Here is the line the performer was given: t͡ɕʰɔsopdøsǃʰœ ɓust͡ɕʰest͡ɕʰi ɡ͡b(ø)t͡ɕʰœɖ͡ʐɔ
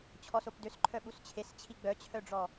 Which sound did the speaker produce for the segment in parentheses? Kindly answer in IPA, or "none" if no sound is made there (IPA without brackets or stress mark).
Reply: œ